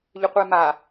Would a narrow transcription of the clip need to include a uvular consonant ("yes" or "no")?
yes